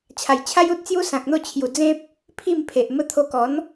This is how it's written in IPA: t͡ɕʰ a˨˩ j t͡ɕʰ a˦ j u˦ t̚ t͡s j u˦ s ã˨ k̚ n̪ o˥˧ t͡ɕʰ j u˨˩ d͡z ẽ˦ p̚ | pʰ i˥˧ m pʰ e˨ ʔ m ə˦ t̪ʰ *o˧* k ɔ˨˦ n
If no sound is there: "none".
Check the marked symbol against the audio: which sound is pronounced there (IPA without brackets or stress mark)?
o˧